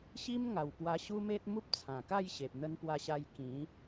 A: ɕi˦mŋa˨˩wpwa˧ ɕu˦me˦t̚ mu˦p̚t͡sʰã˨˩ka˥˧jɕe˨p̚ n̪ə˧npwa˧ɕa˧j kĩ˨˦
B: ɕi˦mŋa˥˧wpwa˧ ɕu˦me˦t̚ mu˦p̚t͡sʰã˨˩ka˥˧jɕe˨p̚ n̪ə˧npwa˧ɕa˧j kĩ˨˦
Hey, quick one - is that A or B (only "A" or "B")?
A